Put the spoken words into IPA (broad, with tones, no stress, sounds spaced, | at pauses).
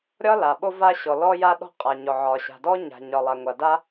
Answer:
ɾʲ ɒ˥ l a˩ ɓ o˥ v a˥ ɕ ɔ˩ l ɔ˥ j a˥ ɗ ɔ̤˥ qʼ a˩ ɲ ɔ˩ ʕ ɒ˩ ɕ a̤˩ d ɔ˥ ɲ a̤˩ ɲ ɒ˩ lˠ a˩ ŋʷ a˩ d a˥